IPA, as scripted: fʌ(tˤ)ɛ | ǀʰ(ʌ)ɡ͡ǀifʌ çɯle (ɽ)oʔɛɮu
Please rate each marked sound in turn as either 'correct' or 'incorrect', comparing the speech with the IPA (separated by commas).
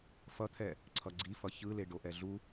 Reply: incorrect, correct, incorrect